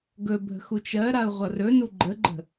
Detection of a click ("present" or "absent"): present